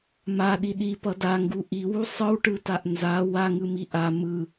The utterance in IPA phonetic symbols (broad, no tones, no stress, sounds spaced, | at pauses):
m a ɗ i ɗ i p ʌ d a ŋ ɡ u ʔ i w u sˤ ɯ w ʈ ɯ t a ʔ n z a w a ŋ ɯ m i ʔ a m ɯ